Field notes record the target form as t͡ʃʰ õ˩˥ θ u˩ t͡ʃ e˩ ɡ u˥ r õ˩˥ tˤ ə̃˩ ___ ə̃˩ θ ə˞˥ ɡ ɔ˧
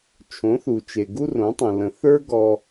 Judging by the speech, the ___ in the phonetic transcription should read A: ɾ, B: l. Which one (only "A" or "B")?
B